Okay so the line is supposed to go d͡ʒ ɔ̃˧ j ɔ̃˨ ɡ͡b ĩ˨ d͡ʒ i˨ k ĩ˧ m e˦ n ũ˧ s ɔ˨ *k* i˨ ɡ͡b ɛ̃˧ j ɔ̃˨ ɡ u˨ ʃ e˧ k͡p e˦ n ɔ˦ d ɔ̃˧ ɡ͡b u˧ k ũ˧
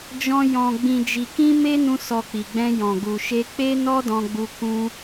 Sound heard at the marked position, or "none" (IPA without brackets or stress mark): k͡p